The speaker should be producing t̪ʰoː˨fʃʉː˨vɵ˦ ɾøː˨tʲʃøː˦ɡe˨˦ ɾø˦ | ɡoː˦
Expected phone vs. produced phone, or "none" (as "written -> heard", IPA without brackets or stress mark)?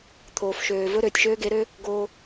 ʉː˨ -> øː˨